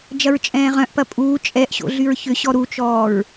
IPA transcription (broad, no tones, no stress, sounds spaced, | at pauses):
d͡ʒ ɐ ɹ t͡ʃʼ ɛ̃ː ʁ œ̃ ʔ p ɐ pʼ uː t͡ʃʼ ɛ ʔ ɕ o̰ ɮ y ɹ ç ʏ ɕ ɔ ɾ u t͡ʃ ɔː ɹ